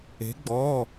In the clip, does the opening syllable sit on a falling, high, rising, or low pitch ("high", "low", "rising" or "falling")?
rising